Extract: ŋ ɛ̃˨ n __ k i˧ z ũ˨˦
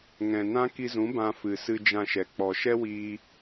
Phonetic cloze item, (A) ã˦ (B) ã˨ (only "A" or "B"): A